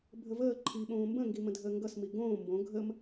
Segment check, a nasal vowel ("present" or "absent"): present